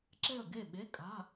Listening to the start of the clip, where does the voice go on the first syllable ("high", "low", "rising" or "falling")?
falling